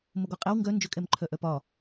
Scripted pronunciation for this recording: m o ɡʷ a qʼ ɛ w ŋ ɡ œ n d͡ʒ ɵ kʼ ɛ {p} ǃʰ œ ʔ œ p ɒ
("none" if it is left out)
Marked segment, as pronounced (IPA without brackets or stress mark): m